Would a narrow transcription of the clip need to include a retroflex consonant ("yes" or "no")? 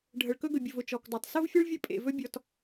yes